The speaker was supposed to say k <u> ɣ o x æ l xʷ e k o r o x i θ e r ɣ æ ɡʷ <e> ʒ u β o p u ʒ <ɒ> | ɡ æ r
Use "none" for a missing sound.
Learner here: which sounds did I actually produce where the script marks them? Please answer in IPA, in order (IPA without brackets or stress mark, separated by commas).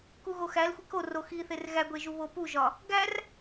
u, e, ɒ